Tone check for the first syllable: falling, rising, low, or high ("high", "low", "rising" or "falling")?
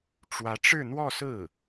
rising